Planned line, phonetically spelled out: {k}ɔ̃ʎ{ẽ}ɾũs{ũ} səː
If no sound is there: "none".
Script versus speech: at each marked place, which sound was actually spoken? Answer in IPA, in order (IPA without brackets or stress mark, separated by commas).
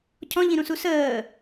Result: cʰ, ĩ, u